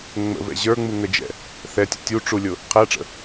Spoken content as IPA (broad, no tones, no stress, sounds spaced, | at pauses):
ŋ͡m ə̰ v ɛ̰ ʑ ə˞ ŋ͡m u ŋ ə d͡ʒ ɛ̰ | θ ɛ tʲ ə̰ tʲ u ʈ͡ʂ u lʲ ʊ | qʰ æ ʈ͡ʂ ə̰